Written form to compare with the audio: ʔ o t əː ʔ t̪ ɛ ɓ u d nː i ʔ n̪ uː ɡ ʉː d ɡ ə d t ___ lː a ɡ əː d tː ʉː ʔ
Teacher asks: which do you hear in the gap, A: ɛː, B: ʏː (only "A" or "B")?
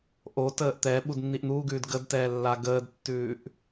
A